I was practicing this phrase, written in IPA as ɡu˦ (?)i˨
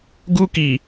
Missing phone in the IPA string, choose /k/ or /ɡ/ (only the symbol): k